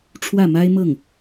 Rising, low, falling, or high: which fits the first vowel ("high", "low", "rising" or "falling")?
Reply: falling